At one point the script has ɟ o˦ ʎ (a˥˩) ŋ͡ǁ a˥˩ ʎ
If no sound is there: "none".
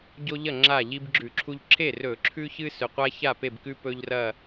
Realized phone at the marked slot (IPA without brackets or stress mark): ɐ˥˩